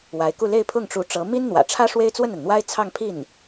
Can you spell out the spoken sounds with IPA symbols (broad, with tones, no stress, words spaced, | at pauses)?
wa˧˥ɪ̯ku˥˧ le˥˧ɪ̯pʰʊ˥˩ŋʈ͡ʂu˧˥ʈ͡ʂɤ˧˥ mi˥nn̪wä̰˨˩ʈ͡ʂʰä˥ ʂwe˥ɪ̯t͡swə˥˩na˩nn̪wa˥ɪ̯ t͡sʰɑ˥˧ŋpʰi˥˩n